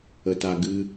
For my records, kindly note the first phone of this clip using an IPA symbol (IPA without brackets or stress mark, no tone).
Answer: ə